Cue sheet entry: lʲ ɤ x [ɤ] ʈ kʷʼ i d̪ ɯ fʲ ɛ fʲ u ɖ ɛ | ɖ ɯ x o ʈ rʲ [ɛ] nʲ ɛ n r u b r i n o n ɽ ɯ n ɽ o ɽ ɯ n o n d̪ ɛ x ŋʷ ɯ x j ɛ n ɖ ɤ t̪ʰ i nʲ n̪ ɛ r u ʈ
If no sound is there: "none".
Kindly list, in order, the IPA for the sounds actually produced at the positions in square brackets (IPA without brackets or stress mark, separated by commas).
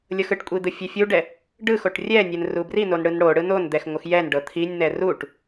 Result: ɯ, ɛ